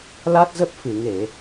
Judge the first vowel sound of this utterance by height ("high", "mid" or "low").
low